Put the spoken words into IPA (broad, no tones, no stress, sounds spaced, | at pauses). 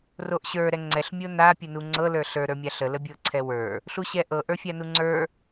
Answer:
r o ʔ ɕ ə˞ ɾ ɛ ŋ͡ǀ ɛ ɬ mʲ o n a pʲ u n u ŋ͡ǀ ɤ l ə˞ ɬ ə˞ ɾ ə˞ mʲ a ɬ ə l ə bʲ ɤ ǀʰ ɛ w ə˞ | ɬ u ɕ ɛ ʔ ɤ ʔ ə˞ fʲ a n u ŋ͡ǀ ə˞